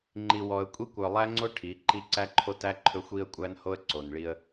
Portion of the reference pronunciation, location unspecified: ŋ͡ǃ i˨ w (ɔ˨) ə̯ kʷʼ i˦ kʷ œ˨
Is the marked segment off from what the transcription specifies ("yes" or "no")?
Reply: no